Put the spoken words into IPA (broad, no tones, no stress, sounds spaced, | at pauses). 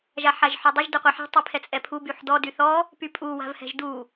ʒ a ħ a ʒ ħ ɔ dˤ ø ʒ d ø qʷ ɛ ħ ɛ̤ tˤ i pʰ ɛ t͡sʼ ɛ pʰ u b y ħ d ɔ d y θ ɔ | p y pʼ u w a̤ v h ɛ̤ ʒ d u